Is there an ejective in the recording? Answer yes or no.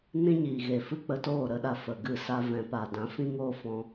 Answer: no